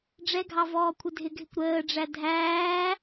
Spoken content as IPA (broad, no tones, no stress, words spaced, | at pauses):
ɖ͡ʐɛɡʱɑ vɔːkʷʰɪdʱɪɡʱɪkʷ ɾəːɖ͡ʐæ dʱæː